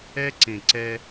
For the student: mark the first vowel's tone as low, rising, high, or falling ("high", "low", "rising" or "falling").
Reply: high